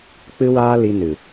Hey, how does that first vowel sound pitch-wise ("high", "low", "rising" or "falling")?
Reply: high